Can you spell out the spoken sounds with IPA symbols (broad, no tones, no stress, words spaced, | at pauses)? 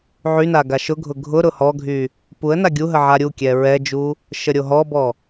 ʕyna ɡaʃʊɡʱʊ ɡʱʊ ɾʊhɔɡʱy | puə̯na ɡʲuɦə ʕaɾʲukʲɛ ɹɛd͡ʒu | ʃəɾʲoɦɔbɔ